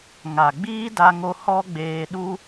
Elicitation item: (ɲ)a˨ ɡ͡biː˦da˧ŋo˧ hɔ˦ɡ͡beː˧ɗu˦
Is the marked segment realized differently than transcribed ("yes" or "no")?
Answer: yes